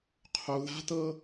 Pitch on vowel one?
low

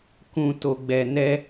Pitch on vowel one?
low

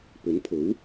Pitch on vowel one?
rising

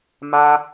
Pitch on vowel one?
high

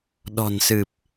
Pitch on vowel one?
low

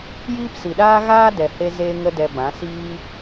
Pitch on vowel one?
high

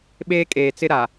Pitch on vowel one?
high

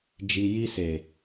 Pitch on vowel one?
low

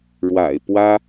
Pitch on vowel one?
low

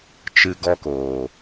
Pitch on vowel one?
low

